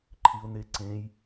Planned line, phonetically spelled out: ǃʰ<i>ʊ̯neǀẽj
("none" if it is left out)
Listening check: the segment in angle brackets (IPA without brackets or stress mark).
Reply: i